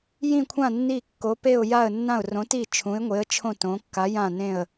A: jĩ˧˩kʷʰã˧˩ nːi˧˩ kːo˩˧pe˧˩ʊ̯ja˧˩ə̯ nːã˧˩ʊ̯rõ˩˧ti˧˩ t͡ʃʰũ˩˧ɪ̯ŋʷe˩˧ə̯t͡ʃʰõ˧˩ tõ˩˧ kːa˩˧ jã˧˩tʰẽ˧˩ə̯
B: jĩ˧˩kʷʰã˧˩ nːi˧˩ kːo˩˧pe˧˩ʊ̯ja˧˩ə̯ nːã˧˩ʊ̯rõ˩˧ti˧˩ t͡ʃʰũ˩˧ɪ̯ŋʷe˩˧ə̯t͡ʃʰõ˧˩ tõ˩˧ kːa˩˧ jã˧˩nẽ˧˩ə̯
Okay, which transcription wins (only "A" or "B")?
B